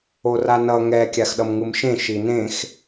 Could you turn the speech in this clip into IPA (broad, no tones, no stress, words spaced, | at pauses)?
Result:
oranʌ ŋɛ kʲaxɗʌmŋɯmʃẽ ʃinẽx